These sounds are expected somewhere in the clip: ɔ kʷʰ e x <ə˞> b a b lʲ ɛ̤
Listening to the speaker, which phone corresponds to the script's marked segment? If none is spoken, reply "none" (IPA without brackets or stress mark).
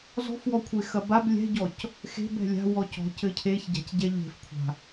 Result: ɐ